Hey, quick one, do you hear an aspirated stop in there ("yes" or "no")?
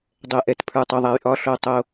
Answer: yes